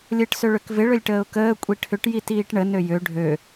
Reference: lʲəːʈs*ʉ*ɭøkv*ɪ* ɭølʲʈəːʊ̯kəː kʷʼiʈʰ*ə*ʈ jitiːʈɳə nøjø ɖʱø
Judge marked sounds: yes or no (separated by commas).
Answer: no, yes, no